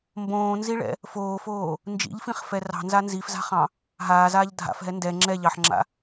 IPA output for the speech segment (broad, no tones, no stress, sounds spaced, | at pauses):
m b õː n z i ɭ ɛ̰ | f oː f oː | n d͡ʒ ḭ ʎ f ĩ χ f ɛ r ɑ̤ n z a n z i f z a̤ χ ɑ̃ | ɦ aː z aː ʎ dʱ a̰ f ɦ ɛ n d ɛ ŋ͡ǁ ɛ ʎ ɑ ħ ŋ͡ǁ a̰